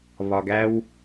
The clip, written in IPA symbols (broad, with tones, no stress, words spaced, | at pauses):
βɒ˨ɡæ˧w